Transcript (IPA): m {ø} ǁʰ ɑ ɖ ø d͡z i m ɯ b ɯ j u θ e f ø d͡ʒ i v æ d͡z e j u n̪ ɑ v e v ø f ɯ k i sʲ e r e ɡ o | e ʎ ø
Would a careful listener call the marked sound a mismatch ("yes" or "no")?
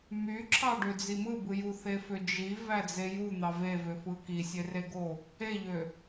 yes